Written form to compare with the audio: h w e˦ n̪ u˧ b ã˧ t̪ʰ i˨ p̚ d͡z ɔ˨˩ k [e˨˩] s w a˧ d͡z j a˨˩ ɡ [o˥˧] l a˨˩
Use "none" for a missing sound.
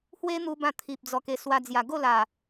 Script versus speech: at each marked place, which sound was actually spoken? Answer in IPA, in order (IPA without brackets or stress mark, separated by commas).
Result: e˨˩, o˥˧